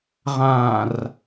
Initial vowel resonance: nasal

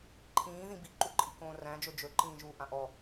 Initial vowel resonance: nasal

